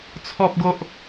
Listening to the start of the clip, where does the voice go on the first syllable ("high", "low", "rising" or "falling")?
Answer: high